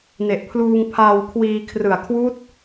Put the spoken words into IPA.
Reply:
n e˨˩ ʔ pʰ l uː˧ ŋ pʰ aː˧ w kʰ w iː˧ kʰ r ɯ˨˩ a̯ kʰ w uː˦˥ t̚

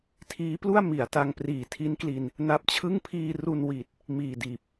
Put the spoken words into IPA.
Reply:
tʰ iː˦˥ p l u˥˩ a̯ m i˩˦ a̯ t a˧ ŋ p r iː˨˩ tʰ i˦˥ n k l i˧ n | n a˦˥ p̚ t͡ɕʰ ɯ˥˩ ŋ pʰ iː˧ r u˧ n w iː˨˩ t̚ | m iː˨˩ d iː˨˩ p̚

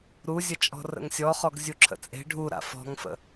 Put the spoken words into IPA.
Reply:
ɾ u zʲ ə t͡ʃʼ ɔ̤ r ə̰ ŋ sʲ ɔ χ ɔ ɡ zʲ u ǁʰ ə̰ t͡sʼ e̤ ɖʱ u ɾ a̰ f ɔ̤ ŋ f ə̰

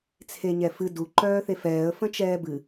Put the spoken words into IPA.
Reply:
t͡sʰ e ɲ ɛ f ɨ d u ǃ œː θ e f ɛː ə̯ f ə̃ t͡ʃ ɛː b ɨ

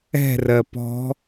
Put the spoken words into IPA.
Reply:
ɛ̤ r ɜ p ɔ̤

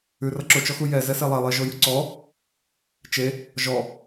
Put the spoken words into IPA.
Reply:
ʉ r ʌ ǁ ʊ t͡ʃ ɔ x u j ɛ z ɛ s e lˠ ɛ lˠ e ʒ o j ʉ ǀ ɔ | t͡ʃ e | ʒ ɔ

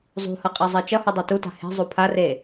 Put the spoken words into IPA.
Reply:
zˤ ṳ h ʌ qʼ ɛ zˤ e t͡ʃ ʌ h u dˤ e t u t a̤ h e̤ zˤ u pʰ a r e

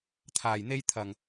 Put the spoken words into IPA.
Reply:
t̪ʰ aː˨˩ j n̪ e˥ j t̪ʰ ɐ˨˩ ŋ

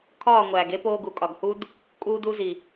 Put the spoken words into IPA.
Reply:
kʰ ɒː˦˨ ŋʷ æː˨ ɡ e˦ p oː˧ ɡ u˨ kʼ ɒ˨ ɡ h u˦ d | kʼ uː˧ d u˧ z i˨

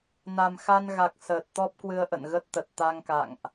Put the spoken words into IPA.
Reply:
n a˨˩ m x a˧ n ɣ a˨˩ k̚ s əː˨˩ t̚ t̪ ɔ˦˥ p̚ k w ɨ˧ ə̯ ʔ ə̰˧˨ n ɣ ə˦˥ t̚ t̪ ə˨˩ t̚ t̪ a˧ ŋ k a̰˧˨ ŋ ʔ

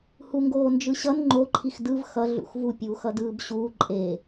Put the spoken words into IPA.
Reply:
h u ŋ ɡ oː n d͡ʒ ɯ ɕ ʌ n ŋ͡ǃ o ǃʰ i x d ɯ v x ʌ ɮ ṵ x v u pʲ uː x ʌ d ɯː b ɕ uː ǃʼ e

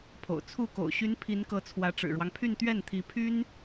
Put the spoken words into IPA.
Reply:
pʰ o̰˨˩ ʊ̯ t͡sʰ u˥˩ k o̰˨˩ ʊ̯ ɕ y˧˥ n pʰ i˧˥ n k ɤ˧˥ t͡sʰ w ä˧˥ ʈ͡ʂ ɻ̩˨˩ ɻ w ɑ˦ ŋ pʰ y˥˧ n t̪ ɥ ɛ˥˩ n t̪ʰ i˧˥ pʰ y˥ n

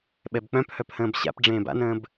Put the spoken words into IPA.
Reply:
ɓ ɛ b k͡p œ̃ p h œ p h ə̃ː b ɕ a̰ p ɖ͡ʐ ẽː b a̰ n ə̃ː b

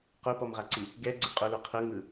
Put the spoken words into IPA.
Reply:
q o p ɔ m ʁ a ǀ i | ɡ ɛ ɡ͡ǀ ɛ qʼ o l o qʰ ɤ ŋ ɯ

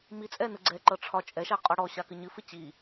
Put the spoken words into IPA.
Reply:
m i t͡sʼ ɛ n ɯ ɡ͡ǀ ɛ ǃ ɤ ʈ͡ʂʰ ɒ t͡ʃʼ ɛ ʃ a qʼ ɒ ɽ ɔ ɕ a k ɨ ɲ ɨ f ɨ t͡ɕ i

